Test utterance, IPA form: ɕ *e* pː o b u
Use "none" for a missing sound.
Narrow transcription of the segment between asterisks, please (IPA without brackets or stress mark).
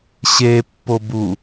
e